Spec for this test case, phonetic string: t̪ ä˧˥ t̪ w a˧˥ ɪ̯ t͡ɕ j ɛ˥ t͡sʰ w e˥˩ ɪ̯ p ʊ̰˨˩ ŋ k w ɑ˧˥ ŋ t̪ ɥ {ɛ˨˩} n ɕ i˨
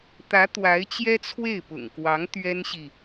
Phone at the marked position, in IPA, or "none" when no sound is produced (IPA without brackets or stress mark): ɛ˥